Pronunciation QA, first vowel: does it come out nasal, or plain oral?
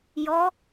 oral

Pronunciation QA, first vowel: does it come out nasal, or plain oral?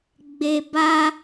oral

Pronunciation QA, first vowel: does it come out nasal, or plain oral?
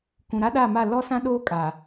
nasal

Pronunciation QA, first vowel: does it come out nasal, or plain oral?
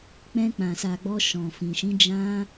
nasal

